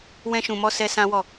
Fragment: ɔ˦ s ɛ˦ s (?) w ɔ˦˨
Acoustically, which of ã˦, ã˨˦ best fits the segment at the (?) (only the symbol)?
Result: ã˦